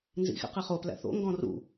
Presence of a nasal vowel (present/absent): present